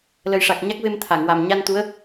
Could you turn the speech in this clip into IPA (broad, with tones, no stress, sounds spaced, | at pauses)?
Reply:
l ə˨˩ j ʂ a˨˩ k̚ ɲ a˦˥ k̚ v e˧ m t̪ʰ a˨˩˨ ŋ w a˨˩ m ɲ a˧ n t̪ u˧˥ ə̯